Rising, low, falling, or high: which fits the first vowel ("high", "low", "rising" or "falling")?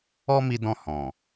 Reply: high